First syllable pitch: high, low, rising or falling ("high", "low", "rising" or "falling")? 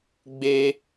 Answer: high